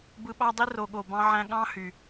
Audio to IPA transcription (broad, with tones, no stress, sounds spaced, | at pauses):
b ɯ˧ ɓ ɑ˦ dˤ i˦ r o˨ ɠ o˨ b ɑ̃˧ ʕ æ̃˧ ɠ ɑ̃˦ h y˨